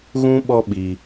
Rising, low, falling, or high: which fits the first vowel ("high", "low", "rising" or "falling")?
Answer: high